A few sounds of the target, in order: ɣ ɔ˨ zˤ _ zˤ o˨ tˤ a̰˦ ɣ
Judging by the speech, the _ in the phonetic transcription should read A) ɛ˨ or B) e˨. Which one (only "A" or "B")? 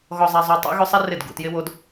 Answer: A